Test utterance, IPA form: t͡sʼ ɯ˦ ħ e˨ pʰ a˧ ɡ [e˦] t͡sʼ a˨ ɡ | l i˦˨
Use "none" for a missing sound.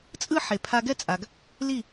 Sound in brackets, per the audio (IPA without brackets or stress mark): ɛ˦